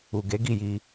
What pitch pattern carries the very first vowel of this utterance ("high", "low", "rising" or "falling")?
low